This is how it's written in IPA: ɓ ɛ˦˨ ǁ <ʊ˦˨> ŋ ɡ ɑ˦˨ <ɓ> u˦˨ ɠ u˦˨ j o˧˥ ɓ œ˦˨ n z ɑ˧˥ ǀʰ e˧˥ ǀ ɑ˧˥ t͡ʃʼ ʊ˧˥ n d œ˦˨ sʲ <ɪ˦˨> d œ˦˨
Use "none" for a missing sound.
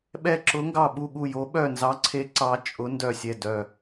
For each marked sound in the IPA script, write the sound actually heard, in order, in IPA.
ʊ˧˥, ɓ, ɛ˦˨

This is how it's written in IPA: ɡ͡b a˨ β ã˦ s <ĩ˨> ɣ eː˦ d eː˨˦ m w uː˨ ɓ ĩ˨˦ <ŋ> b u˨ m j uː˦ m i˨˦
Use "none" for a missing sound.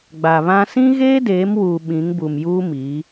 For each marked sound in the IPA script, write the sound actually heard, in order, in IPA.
ĩ˦, ŋ

